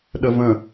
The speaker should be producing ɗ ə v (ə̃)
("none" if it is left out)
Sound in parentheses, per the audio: ə̃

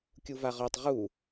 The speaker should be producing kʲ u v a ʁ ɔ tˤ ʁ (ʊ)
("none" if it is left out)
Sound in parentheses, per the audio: u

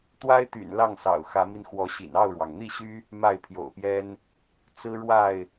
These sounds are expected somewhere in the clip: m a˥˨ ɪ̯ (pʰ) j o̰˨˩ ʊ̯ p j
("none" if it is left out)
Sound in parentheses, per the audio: pʰ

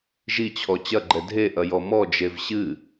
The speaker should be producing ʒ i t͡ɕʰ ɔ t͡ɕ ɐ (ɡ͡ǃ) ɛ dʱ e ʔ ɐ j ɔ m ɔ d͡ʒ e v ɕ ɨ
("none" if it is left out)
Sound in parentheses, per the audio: ɡ͡ǃ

